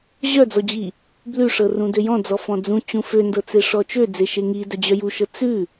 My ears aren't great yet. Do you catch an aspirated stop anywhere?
no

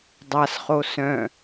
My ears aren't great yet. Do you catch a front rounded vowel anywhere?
yes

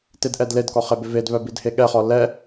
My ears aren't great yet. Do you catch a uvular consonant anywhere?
yes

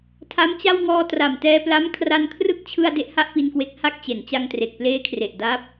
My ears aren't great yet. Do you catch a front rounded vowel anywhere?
no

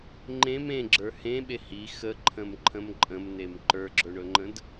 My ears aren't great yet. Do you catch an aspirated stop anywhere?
yes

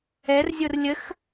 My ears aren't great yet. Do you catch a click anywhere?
no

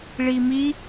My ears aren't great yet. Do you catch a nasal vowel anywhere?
no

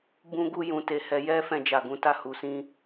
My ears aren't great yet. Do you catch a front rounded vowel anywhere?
no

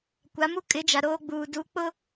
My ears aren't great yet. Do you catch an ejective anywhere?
yes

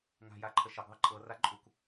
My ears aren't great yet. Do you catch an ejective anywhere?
yes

